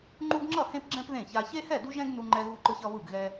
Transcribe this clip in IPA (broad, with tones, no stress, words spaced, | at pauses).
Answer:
ŋ͡ǃu˦ɡŋ͡ǁʌ˥˨hẽ˦pɡ͡ǁɛ̃˦p ðẽ˥˨ça˦ çe˦hɛ˥˨du˦ʒɛ̃˦ɡ nu˦ŋ͡ǃɛ˦ɣu˦ǃɯ˦ç ʌ˦βɯ˥˨ɡɣɛ˦